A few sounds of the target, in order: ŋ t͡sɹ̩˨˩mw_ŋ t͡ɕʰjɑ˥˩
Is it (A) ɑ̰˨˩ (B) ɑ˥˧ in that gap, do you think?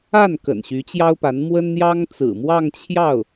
B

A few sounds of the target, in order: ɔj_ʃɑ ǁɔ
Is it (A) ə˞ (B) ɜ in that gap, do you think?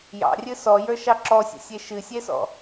A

